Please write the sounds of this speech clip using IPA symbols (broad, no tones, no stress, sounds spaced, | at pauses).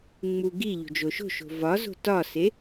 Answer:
ŋ͡m u ɡ i ʎ o̤ d͡ʒ o ʃ o̤ ʃ o̤ v ɒ z o̤ t ɒ s e